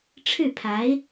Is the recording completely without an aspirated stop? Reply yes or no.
no